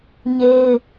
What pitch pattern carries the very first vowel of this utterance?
high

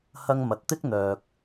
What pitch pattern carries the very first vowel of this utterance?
high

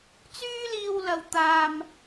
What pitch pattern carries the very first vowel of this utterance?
high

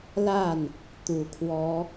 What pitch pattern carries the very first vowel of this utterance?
falling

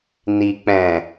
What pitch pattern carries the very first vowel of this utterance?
low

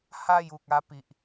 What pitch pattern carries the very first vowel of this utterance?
falling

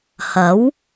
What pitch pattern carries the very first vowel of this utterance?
rising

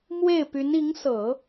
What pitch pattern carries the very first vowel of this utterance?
falling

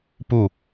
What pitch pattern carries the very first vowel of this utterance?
falling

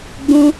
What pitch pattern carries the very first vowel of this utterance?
high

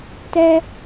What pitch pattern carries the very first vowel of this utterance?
high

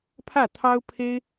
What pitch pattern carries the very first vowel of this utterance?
falling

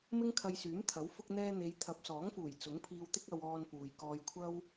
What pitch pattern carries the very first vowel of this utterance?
high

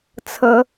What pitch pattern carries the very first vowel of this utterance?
rising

